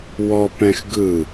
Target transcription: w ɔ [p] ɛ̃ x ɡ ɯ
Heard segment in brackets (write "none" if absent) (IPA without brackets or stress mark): p